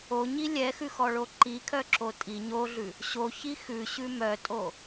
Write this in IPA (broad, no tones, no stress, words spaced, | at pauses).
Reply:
oɲi lʲɛxʉxɔɭo ǃikʰœǁo tʼi ɲoɮʉ | ɕoçi xʉɕʉ mœtʼo